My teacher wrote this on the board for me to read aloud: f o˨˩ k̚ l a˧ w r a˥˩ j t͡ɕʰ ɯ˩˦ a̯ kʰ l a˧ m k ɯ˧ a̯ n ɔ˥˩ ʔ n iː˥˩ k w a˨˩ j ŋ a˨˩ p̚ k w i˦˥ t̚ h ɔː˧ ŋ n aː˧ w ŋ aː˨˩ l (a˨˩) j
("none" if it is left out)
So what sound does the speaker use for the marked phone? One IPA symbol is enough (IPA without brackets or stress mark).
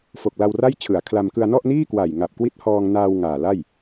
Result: a˥˩